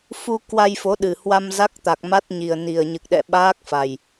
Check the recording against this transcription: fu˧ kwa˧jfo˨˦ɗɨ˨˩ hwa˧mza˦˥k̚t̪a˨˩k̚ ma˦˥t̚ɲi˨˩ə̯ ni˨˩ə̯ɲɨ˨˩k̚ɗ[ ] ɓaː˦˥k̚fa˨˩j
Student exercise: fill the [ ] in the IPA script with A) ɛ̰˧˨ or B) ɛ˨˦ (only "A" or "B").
A